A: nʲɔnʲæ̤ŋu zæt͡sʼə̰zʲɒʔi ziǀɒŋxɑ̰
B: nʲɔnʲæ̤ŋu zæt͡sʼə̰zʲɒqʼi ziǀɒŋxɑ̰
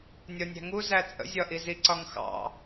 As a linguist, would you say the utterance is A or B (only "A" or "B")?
A